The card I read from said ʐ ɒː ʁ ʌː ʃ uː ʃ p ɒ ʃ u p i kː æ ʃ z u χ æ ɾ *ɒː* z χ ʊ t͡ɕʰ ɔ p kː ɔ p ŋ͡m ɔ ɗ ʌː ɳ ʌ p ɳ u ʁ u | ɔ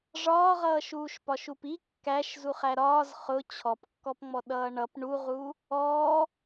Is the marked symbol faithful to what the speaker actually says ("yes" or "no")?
yes